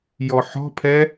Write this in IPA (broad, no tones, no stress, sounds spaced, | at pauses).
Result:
j ɔ ħ ɔ̤ pʰ ɛ